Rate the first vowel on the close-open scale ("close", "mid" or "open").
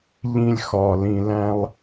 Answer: close